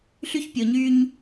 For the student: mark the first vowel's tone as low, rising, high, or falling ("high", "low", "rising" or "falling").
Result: high